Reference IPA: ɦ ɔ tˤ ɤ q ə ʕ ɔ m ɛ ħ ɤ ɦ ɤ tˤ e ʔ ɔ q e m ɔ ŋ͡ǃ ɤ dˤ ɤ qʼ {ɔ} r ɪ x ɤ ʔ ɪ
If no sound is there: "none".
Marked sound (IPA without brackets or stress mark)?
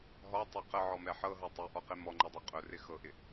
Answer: ɵ